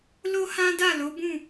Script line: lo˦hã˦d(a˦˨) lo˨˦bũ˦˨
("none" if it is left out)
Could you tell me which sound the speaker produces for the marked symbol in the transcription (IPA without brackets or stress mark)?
a˦˨